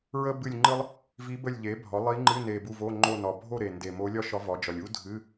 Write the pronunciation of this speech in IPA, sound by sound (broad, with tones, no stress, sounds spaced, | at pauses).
ɹ ə˥ b ɨ˦˨ lʲ ŋ͡ǃ ɨ˥ lˠ | v i˧˥ b ə˦˨ lʲ ʎ e˩˥ bʱ ɒ˩˥ lˠ i˧˥ ŋ͡ǃ ɨ˧˥˧ n e˨˩ b u˦˨ v o˧˥˧ ŋ͡ǃ o˦˨ n ɒ˨˩ bʱ o˦˨ ɾ e˨˩ n d e˨˩ m o˧˥ lʲ ɒ˥ ʃ ɒ˧˥ v ɒ˩˥ d͡ʒ ɒ˨˩ lʲ u˥ dʱ ɨ˧˥˧